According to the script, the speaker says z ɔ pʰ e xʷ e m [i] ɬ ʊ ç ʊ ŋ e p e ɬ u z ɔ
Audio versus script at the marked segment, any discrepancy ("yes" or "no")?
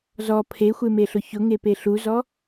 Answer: yes